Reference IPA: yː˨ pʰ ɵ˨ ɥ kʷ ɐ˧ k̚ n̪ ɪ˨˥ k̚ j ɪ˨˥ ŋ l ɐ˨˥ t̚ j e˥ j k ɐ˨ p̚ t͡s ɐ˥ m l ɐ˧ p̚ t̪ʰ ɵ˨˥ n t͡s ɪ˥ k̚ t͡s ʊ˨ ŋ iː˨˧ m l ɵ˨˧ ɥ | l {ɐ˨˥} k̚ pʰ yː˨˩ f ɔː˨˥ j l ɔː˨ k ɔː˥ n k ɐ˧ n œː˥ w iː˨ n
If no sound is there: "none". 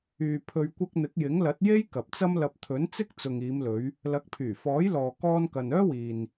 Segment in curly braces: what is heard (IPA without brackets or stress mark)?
ɐ˨˥